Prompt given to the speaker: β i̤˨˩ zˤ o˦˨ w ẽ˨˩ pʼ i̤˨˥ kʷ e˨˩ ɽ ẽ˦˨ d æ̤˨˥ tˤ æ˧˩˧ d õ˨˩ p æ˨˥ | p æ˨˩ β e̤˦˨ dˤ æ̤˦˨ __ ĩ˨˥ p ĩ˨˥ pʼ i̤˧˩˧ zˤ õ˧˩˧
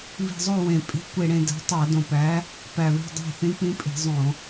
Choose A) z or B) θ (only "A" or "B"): B